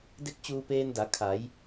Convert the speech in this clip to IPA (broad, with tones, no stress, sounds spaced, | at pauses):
d e˥˨ k̚ t͡ɕ uː˧ p eː˧ n d a˩˧ kʰ a˩˧ j